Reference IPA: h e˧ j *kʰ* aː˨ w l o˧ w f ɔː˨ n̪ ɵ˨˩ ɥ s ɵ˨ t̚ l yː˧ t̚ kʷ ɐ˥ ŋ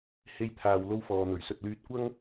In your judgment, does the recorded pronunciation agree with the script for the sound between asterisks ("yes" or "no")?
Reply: no